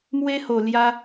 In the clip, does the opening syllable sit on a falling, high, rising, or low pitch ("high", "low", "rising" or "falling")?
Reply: high